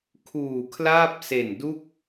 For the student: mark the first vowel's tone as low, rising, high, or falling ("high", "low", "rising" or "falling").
low